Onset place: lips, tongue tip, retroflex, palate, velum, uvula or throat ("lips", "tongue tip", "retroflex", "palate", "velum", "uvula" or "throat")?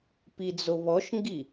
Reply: lips